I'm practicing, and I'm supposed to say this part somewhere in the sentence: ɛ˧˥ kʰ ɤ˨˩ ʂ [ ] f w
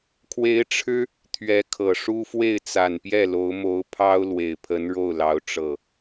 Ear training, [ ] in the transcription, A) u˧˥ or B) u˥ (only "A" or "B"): B